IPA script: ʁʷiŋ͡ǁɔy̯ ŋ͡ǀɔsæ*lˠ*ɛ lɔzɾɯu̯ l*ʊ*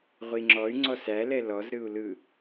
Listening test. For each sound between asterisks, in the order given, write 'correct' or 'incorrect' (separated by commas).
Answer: incorrect, incorrect